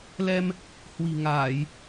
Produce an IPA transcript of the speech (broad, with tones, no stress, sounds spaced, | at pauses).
l ɛ˧ m | h w i̤˨˩ ŋ aː˧˩˨ j